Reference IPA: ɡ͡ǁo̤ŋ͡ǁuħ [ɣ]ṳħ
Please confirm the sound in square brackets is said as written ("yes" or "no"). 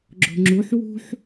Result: no